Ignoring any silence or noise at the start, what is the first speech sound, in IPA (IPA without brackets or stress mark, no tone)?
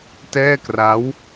t